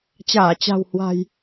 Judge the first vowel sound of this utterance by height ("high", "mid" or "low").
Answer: low